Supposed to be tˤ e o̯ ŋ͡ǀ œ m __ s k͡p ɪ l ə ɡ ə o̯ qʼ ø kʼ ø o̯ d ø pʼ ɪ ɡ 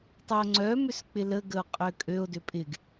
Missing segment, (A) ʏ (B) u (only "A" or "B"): A